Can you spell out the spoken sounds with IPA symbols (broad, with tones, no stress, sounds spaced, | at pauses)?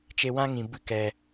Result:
t͡ʃ e˧ w ã˦ ŋ ĩ˨ b ɨ˧ k ɛ˨